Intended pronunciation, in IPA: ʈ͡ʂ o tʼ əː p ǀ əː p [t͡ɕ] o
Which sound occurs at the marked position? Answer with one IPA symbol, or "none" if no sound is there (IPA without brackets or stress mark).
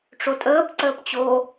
t͡ɕ